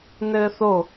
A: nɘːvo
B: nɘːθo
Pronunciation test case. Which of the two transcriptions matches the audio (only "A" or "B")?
B